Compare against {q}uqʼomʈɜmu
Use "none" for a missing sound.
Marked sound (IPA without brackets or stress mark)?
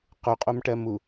q